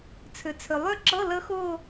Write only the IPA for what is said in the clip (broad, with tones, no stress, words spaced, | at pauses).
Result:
t͡sʰʏ˩t͡sʰʏ˩lˠø˥˧ǁɤ˧˥˧ lə˦˥xʊː˥˧